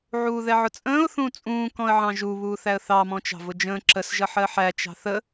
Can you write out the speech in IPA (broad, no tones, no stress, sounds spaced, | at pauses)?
ʕ uː ð ɛ ʕ ʊ t͡sʼ ə̃ː ʊ̯ θ ũ t͡sʼ ũː k ɔ̃ ə̯ ʕ ɑ̃ ʒ u β uː θ æ ə̯ θ ɑ m ɔ̃ t͡ʃ ɑ̤ v ʊ d͡ʒ ə̃ː ǁ ə s ʒ ʌ ħ ɜ ħ æ t͡ʃ ɑ̤ θ ə